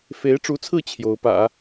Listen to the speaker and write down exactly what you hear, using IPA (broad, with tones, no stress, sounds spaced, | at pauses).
f e˧˥ ɪ̯ ʈ͡ʂ u˧˥ t͡sʰ ɹ̩˥˩ t͡ɕʰ j o˧˥ ʊ̯ p ä̰˨˩˦